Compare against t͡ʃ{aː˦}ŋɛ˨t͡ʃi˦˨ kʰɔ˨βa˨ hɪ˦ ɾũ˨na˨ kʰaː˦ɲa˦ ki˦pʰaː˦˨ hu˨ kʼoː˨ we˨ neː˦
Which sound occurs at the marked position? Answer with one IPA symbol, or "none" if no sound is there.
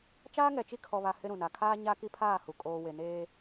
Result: aː˦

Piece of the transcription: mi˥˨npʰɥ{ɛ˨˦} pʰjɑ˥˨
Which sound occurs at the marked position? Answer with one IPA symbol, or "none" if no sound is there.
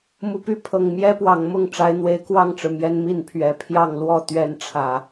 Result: ɛ˨˦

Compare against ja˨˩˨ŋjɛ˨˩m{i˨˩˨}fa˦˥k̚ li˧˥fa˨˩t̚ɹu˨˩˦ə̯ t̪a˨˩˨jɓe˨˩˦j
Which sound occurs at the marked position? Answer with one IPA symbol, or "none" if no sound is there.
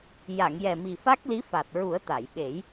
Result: i˨˩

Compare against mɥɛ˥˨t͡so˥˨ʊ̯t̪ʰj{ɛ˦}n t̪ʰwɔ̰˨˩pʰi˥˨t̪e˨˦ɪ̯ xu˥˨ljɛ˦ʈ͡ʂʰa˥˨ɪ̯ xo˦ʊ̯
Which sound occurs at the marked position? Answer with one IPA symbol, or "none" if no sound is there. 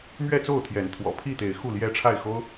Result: ɛ˨˦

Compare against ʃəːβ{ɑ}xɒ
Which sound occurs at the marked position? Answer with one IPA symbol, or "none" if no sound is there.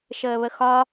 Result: ə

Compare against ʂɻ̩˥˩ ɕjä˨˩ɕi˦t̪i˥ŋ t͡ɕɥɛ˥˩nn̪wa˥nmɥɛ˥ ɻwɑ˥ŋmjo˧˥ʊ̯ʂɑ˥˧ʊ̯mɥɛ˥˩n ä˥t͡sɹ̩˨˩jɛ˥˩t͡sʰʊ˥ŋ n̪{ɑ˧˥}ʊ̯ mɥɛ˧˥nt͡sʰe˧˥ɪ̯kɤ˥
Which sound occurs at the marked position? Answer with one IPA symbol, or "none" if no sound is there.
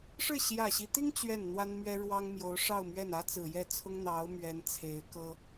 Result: ɑ˧˥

